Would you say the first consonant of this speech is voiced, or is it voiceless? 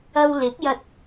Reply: voiced